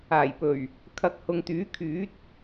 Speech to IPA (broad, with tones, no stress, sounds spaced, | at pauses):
aː˨˩ j p ɵ˨˩ ɥ | kʰ ɐ˨˥ k̚ h ʊ˨ ŋ t̪ yː˨˥ kʰ yː˨˥ t̚